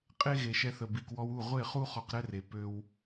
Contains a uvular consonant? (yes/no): yes